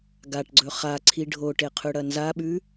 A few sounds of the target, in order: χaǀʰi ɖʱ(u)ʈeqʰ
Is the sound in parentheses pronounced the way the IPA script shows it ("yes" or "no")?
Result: no